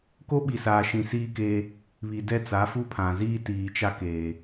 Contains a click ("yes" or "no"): no